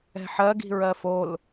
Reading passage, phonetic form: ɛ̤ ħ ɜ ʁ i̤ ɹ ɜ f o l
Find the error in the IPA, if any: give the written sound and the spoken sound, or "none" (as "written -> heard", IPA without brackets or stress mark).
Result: ʁ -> ɡ